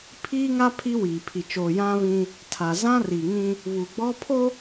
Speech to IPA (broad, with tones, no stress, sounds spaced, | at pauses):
pʰ iː˦ ŋ a˦ pʰ i˦ w iː˨ pʰ i˨ t͡ʃ oː˨ j ã˦ β ĩ˦ | tʰ a˨ z ã˦ r i˨ ŋ ĩ˦ | β u˨ ɡ͡b ɔ˦ pʰ o˦